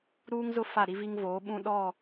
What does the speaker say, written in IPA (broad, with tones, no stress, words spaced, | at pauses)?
ɾuː˦ŋzʊ˦ fa˦˨ɾi˦vi˦ŋvoː˨˦ ɓũ˦ɗɔ˦˨